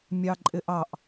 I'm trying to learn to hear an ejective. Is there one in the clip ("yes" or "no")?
yes